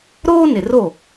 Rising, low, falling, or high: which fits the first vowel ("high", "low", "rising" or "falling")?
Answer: high